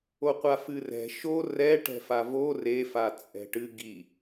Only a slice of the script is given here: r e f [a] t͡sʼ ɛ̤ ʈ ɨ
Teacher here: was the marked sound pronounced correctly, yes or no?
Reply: yes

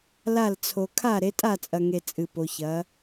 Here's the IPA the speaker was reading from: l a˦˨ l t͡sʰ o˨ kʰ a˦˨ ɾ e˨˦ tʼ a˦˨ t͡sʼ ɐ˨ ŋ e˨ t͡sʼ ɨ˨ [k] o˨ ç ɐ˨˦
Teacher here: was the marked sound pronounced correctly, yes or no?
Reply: no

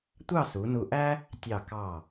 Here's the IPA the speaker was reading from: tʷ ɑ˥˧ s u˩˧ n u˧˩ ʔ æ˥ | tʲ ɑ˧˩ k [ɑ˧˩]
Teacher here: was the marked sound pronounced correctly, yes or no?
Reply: yes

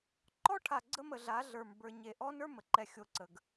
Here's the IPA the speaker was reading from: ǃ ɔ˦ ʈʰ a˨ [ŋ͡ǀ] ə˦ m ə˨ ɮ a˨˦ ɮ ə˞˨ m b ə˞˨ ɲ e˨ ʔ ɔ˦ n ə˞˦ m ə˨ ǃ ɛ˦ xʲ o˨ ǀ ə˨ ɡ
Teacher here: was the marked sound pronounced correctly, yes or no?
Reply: no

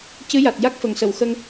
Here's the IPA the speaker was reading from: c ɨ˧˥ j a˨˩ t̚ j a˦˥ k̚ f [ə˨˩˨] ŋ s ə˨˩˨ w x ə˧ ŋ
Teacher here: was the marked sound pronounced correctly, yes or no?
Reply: yes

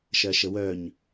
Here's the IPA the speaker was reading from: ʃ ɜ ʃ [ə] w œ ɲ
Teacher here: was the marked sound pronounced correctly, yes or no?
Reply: yes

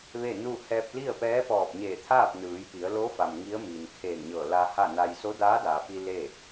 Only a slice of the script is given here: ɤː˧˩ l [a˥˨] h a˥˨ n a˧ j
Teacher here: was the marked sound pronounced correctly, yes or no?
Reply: no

